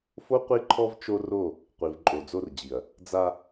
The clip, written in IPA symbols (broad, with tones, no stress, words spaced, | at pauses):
fo˦ qʷi˦ǃʰɔ˦v t͡ʃo˦ro˦˨ | qʷi˨v ǃʼo˨d͡zo˦rd͡ʑi˨ɐ̯ | d͡za˦